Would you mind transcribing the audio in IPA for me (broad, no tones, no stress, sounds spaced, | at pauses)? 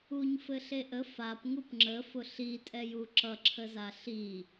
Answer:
u ɲ f ɘ ɬ e ʔ ə f a p ŋ u p ŋ͡ǁ ə f ʊ ɬ i tʼ ɛ j u ǁ ʌ ǁʰ ə z a ɬ i